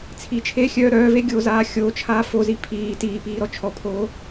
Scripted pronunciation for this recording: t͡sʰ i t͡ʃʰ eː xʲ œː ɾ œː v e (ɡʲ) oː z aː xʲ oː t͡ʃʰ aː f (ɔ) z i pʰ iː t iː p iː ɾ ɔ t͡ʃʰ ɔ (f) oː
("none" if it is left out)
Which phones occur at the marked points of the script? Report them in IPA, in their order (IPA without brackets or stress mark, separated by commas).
ɡʲ, o, pʰ